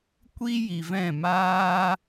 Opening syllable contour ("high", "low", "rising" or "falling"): high